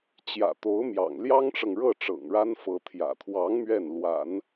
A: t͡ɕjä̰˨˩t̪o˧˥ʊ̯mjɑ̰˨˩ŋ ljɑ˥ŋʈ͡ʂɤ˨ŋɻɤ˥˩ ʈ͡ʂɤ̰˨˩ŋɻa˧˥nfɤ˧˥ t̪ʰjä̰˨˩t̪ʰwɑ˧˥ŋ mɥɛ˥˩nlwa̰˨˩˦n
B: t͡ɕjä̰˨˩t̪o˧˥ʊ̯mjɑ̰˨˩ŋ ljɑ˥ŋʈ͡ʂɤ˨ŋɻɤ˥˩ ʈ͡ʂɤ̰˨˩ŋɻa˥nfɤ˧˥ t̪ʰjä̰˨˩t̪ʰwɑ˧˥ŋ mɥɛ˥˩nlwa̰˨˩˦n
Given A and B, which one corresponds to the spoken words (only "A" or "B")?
B